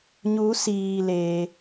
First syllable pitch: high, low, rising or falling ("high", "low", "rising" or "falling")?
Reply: rising